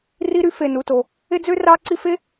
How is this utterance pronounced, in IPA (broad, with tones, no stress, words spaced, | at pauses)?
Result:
ri˥ɾy˥ fe˧nu˧to˧ | e˥d͡zø˥ rɑ˥ǀi˥ fe˥